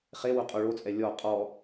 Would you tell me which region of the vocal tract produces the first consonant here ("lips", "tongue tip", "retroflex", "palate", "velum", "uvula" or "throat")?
uvula